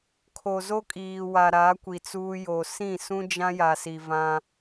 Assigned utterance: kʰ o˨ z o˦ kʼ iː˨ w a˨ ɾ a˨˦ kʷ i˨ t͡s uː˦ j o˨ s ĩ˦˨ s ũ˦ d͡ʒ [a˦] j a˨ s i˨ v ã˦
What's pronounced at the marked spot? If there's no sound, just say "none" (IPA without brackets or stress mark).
ã˦